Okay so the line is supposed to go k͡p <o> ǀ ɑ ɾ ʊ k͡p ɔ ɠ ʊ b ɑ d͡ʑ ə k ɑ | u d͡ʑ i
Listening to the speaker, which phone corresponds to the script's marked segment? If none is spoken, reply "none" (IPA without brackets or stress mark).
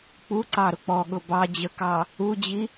u